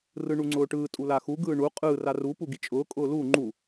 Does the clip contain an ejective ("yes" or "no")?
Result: yes